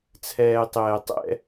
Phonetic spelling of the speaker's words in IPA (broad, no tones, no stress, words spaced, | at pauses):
t͡sʰɛːtˤɛːtˤɛ̰